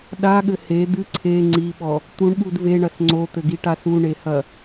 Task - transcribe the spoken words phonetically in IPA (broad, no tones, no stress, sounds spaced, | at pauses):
ɗ a ɠ ɘ h e d̪ ɨ ǀʰ e ŋ͡ǀ i ɓ ɔ | t̪ u ɳ ɓ u d v e ɳ ɐ s ŋ͡ǀ o t̪ ɘ ɡ i ʈ a s u ɳ e h ɐ